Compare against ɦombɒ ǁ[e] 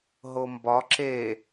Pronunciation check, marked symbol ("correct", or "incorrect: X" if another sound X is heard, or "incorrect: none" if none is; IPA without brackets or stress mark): correct